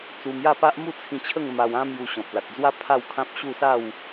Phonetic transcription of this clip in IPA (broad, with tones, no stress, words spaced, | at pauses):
t͡su˧mja˥˧pa˦ʔ mu˥˧t͡sʰĩ˧t͡ɕʰə˥˧ŋ ma˧wã˦ mju˧ɕɔ̃˨p̚ la˨t̚d͡zwa˦ pʰa˥˧wkʰã˦p̚ɕu˥˧ sa˥˧w